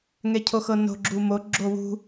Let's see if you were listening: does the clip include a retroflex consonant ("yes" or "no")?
no